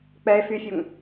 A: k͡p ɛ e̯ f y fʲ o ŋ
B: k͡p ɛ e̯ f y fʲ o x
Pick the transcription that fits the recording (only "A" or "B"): A